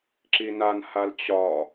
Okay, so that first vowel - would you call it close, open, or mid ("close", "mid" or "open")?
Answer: close